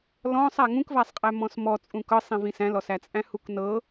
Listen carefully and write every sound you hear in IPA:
lɔ̃sˤæ ŋũkvæsˤqʼæ mɔ̃smɔ t͡sʼũkɤsˤĩvĩ sæ̃lɔsæt͡sʼæ̃ huknɤ

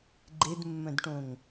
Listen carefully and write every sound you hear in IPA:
ɡ͡ǃedmːœ̃dʈõŋ

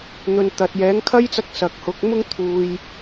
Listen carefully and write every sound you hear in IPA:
n̪ɵ˨n t̪ɐ˨t̚ jɛː˨˥ŋkʰɐ˥jt͡sɐ˧k̚ sɐ˨k̚hʊ˨˥k̚ mʊ˥ŋt̪ʰuː˨j

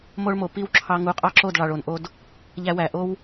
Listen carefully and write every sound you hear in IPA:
mo˦ɭmo˨ pi˧w ǁʰɑ˧ ŋu˨˦qʼɑ˦ǁo˦˨dɭɑ˨ɭ o˨nʔo˧d | ʎæ˧wæ˨ʔo˦w

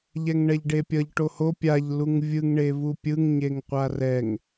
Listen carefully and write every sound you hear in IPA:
ʎɛŋɳɛʎɖepʲʌʎ ʈoho pʲaʎ luŋvʲɯŋ ɳevupʲɯŋ ɲeŋqʷarɛŋ

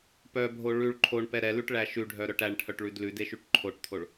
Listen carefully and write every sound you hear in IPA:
pœbʱo ɭʉɭ ǃʰoɳpɛ ɾɛlʉʈɭæ ʃʉɖʱœɾœʈ æɳʈʰœʈɭʉd lʉdeʃʉʈ ǃʰoʈt̪ʰoɭ

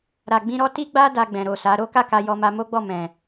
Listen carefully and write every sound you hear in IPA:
ɾa˨ɡ͡bĩ˧ɾɔ˦ ti˦ɡ͡ba˦ da˧ɡ͡bɛ̃˨ɾo˨sa˨˦ ɾo˦ka˦ka˧ jɔ˧ma˧ mo˦ɡ͡bɔ˦˨ mɛ̃˨

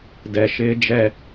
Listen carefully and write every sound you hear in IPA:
dɛ˨ ʃɪː˦d͡ʒɛ˦

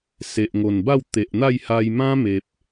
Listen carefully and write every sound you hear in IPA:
se˨ʔŋo˨˩n ba˥˧wt̪e˨ʔn̪a˥˧jha˧j mã˦me˨p̚

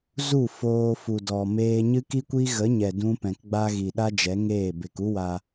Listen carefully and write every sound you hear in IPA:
zu˦˨ foː˧fu˨ dɔ˨meː˧ ɲɨ˦ki˦kʷi˦ ɣə˨˦ɲɛ˨ dũ˦ pɛ̃˨kɡ͡ba˦ɣi˨ ɗa˦ d͡ʒɛ˨˦ŋeː˦˨ be˨ku˦ wa˧

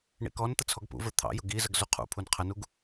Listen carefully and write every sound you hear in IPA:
ɳḭkɔnt̪ə t͡sʰɔɡpṵvə˞ t̪ʰɑ̰jʊ ɡizəɡ zuqʰṵpʰun qʰənuɡ

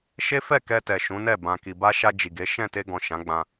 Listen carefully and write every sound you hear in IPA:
ʃe˦fɛ˦˨kɛ˧tɛ˨ ʃũ˨˦nɛ˦˨ bã˨ki˨ba˧ ʃa˧ d͡ʒi˨ɡe˨˦ ʃɛ̃˦˨ te˧ɡɔ̃˨ ʃã˨˦ɡ͡bã˧

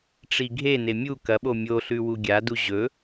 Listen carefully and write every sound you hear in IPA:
ʈ͡ʂiɡʱene mʲu kɐɓo mʲoɬʉ wuɡʲadu ʑɵ

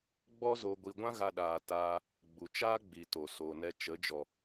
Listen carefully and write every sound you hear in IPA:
ɡ͡bɔ˦zo˧ ɡʷi˧ ɡʷã˦ ɣa˧ɗaː˨ taː˧ | ɡ͡bu˨t͡ʃaː˦ ɡ͡bi˨ to˨ soː˨nɛ˧ t͡ʃə˨˦ d͡ʒɔ˨

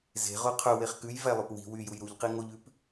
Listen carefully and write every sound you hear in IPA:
ze̤ʁo qʰɵweχ kʉjvælˠøp wi̤ wyjuj ɾuʎqi ŋoʎʉp

